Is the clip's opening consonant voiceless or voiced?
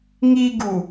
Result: voiced